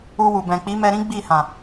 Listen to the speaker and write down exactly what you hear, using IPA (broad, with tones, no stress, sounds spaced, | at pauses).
u˧ w u˨ b ɛ̃˨ k͡p i˨˦ m ɛ˧ ɾ ĩ˦ ɡ͡b i˦˨ h ã˨